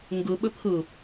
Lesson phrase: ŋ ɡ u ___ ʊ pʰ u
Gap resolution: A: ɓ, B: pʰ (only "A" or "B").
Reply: A